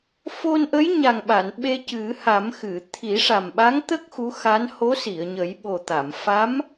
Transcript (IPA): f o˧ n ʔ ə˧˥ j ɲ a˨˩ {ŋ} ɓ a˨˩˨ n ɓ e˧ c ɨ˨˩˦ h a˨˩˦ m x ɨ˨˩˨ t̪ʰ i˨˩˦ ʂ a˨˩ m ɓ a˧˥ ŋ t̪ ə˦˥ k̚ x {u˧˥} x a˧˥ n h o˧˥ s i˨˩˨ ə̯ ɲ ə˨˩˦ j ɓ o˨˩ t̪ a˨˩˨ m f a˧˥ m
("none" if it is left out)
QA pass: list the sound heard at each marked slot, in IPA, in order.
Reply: ŋ, u˧˥

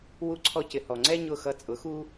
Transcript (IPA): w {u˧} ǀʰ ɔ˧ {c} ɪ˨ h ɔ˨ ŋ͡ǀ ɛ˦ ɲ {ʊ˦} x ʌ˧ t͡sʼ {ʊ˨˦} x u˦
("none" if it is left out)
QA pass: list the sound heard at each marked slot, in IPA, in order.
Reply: u˧, c, ʊ˦˨, ʊ˨˦

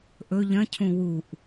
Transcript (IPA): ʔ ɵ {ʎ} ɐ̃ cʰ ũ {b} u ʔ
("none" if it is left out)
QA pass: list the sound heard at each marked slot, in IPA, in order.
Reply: ʎ, w

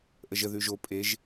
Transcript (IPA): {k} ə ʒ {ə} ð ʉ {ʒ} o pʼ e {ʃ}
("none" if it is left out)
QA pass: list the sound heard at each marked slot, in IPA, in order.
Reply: ʔ, ə, ʒ, ʒ

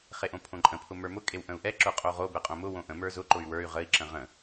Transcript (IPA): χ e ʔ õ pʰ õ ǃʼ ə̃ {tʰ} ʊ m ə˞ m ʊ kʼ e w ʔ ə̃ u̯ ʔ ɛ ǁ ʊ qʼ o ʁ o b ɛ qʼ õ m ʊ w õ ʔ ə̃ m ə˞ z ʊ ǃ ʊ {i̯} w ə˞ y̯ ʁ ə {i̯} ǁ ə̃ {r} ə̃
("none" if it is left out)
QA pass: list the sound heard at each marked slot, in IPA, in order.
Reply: pʰ, y̯, i̯, ʁ

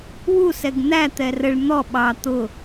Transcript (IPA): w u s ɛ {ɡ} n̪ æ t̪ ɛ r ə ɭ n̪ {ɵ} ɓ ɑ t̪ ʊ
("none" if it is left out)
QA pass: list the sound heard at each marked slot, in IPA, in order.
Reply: ɡ, ɔ

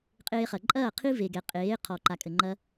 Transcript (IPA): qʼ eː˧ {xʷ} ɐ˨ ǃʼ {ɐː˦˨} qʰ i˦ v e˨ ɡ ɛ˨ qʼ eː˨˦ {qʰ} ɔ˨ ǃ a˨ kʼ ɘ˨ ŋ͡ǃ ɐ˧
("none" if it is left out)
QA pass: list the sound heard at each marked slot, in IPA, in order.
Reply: χ, ɐː˦˨, qʰ

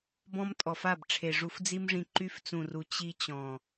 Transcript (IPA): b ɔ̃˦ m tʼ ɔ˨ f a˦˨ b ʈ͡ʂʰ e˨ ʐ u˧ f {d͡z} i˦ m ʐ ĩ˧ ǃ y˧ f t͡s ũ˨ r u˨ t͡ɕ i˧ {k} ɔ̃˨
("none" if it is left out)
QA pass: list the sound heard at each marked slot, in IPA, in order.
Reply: d͡z, t͡ɕ

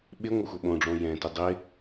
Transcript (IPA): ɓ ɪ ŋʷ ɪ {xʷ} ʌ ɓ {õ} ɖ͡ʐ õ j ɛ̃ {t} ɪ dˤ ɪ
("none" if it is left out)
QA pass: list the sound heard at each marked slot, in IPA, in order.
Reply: xʷ, õ, t

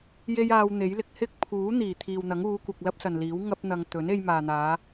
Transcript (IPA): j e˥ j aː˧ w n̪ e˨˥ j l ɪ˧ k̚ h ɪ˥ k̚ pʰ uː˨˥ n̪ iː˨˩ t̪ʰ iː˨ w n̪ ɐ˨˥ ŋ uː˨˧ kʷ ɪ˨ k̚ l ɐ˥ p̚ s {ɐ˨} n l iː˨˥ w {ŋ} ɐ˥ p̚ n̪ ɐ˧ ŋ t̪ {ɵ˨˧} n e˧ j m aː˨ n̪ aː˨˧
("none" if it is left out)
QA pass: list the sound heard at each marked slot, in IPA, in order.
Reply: ɐ˨, ŋ, ɵ˨˥

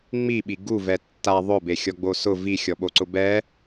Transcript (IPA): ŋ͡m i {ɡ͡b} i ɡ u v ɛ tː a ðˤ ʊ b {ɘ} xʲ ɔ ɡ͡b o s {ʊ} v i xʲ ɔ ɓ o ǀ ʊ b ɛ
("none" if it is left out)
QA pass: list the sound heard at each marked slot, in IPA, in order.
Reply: ɓ, e, ʊ

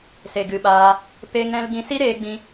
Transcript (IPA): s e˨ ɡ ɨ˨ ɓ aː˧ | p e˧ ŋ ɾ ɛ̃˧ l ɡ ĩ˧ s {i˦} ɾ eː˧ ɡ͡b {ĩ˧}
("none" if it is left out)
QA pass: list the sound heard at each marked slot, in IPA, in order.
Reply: i˦, ĩ˧

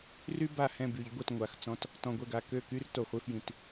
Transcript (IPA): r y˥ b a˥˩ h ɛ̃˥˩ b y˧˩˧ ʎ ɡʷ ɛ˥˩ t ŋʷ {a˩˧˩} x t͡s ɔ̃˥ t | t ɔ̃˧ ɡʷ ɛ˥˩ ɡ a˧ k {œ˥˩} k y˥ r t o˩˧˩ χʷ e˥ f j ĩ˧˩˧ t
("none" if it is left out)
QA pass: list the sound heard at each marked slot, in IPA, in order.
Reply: a˩˧˩, ø˥˩

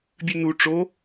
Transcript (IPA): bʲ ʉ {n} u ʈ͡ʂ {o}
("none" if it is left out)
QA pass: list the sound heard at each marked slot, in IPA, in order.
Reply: n, o

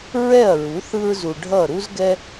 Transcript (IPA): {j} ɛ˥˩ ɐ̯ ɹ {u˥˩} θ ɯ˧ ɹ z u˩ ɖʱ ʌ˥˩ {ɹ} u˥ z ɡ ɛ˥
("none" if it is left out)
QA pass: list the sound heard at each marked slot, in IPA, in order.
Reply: ɹ, u˩˥, ɾ

